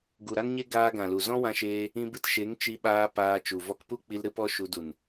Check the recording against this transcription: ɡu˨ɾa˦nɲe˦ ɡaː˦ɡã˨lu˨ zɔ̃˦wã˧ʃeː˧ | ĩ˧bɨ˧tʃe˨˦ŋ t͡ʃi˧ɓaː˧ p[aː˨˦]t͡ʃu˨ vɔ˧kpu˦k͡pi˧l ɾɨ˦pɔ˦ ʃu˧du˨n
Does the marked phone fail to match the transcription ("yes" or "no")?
yes